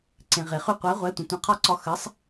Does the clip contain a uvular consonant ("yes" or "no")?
yes